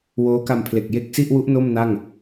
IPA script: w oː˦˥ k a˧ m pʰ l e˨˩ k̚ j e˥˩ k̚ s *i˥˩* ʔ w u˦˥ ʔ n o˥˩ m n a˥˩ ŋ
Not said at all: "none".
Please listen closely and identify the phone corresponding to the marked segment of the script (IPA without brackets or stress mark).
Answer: i˥˩